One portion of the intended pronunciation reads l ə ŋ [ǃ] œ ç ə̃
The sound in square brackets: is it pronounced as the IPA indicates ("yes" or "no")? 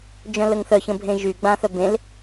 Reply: no